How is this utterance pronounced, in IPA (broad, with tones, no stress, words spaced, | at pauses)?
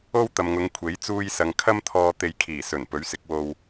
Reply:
o˥w t̪ɐ˨mŋʊ˨˧ŋ kʷʰe˨˥jt͡suː˥jsɐ˧ŋ kʰɐ˥mt̪ʰɔː˧ t̪e˧jkʰiː˨˩ sɵ˨˩n pɵ˨˥ɥsɪ˨˥k̚wo˧w